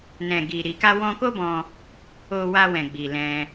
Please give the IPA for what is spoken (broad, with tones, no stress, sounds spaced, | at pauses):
n ɛ̃˨ ɡ i˨ ɾ i˨ k a˧ w ɔ̃˧ k o˦ b ɔ̃˧ | o˧ w a˧ w ɛ̃˨ ɡ͡b i˧ l ɛ̃˦